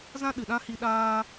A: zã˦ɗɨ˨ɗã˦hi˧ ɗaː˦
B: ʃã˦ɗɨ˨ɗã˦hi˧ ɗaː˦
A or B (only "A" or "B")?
A